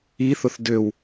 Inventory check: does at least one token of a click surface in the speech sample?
no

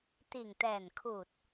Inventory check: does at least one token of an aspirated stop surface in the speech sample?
yes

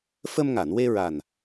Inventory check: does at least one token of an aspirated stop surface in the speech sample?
no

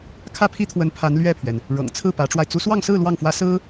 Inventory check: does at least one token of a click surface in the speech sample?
no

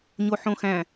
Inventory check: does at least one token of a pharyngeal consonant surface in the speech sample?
yes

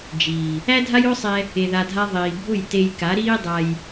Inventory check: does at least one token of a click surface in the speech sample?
no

